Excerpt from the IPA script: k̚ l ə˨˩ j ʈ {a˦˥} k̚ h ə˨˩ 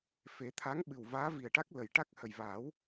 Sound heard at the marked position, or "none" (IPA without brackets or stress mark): a˦˥